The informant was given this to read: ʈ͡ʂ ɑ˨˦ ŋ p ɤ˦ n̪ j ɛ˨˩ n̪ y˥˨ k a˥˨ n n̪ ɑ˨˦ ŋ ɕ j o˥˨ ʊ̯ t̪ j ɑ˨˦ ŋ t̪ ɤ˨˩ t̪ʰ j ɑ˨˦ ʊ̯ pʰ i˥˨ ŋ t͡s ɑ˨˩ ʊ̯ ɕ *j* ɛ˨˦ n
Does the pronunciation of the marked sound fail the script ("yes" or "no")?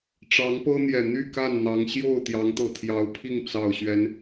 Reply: yes